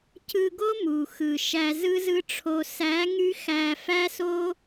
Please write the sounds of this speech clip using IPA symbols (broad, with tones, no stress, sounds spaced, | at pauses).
c ɯ˧ ɡ o˦ m u˨ x ɯ˨ ʃ æ˧ z ɯ˦ z ɯ˦ ʈ͡ʂʰ o˧ s æ˨˦ ŋ y˦ x æ˧ f æ˦ s o˦